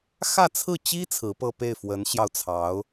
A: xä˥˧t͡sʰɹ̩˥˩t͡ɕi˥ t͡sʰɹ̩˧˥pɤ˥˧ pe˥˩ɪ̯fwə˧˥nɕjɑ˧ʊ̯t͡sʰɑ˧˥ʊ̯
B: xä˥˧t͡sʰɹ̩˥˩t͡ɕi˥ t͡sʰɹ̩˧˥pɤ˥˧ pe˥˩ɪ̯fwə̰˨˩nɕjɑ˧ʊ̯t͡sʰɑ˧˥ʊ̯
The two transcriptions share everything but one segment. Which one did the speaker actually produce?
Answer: A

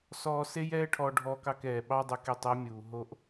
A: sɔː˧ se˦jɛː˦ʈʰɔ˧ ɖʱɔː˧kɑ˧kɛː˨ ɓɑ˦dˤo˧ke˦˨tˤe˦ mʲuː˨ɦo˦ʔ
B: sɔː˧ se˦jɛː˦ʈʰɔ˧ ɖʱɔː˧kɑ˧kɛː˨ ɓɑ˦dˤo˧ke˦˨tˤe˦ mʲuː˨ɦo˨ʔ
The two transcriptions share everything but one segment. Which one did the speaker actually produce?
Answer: A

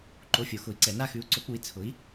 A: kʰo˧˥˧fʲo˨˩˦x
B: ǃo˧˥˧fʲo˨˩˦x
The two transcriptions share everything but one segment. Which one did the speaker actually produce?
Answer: B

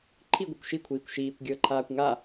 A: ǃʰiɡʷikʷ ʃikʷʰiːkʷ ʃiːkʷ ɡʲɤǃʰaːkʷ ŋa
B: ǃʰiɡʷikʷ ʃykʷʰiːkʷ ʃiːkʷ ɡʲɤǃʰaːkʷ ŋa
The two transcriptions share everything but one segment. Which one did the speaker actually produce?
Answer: A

